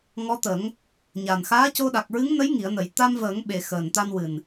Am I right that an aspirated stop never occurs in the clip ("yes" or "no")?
yes